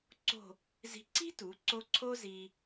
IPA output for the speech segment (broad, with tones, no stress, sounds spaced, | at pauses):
ǀ o̤˥˧ | z i̤˧ ǀ i̤˥ t u˩˧ ǀ o˧ ǀʰ o˥ z i˧